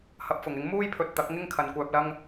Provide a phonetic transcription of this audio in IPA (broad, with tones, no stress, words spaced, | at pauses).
hɐ˧p̚fʊ˨˩ŋɪ˨˥ŋ muː˥jpʰɵ˨t̚ t̪ɐ˨˥k̚ŋɪ˥ŋ kʰɐ˨nkʷœː˧p̚lɐ˥ŋ